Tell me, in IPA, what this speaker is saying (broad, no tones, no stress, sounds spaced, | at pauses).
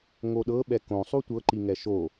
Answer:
ŋ o ɗ ɤ ɓ ɛ k õ sˤ u tʷ ɤ ǃ i ŋ ɛ ʃ o